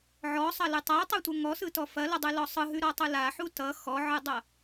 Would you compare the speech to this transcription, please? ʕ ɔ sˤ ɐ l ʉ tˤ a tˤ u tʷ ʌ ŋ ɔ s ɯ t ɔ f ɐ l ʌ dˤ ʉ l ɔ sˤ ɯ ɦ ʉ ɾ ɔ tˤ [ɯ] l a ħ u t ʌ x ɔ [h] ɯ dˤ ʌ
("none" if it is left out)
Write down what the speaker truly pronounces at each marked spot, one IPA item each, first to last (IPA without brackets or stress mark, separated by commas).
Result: ɯ, ʕ